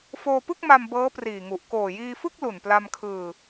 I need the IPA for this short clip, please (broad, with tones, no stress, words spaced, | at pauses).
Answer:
foː˧pɯ˥˩k̚ma˧m bɤː˦˥priː˨˩ŋu˨˩ʔ koː˨˩jiː˧fɯ˥˩k̚ lu˨˩npla˧mkʰɯː˧